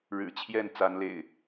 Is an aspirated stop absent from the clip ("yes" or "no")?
no